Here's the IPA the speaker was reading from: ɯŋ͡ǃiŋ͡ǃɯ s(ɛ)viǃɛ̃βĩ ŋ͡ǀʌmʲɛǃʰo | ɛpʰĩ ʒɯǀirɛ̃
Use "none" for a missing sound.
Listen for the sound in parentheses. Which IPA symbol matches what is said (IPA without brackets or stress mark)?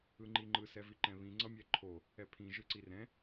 ɛ